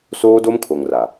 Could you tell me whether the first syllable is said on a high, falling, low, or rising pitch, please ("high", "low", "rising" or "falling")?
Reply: high